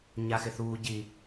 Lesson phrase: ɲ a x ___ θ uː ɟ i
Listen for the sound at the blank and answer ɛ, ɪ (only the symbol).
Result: ɪ